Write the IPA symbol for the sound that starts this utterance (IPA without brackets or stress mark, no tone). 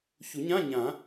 ç